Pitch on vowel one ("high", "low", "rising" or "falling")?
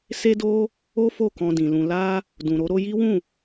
high